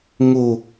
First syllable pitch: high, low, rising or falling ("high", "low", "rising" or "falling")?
falling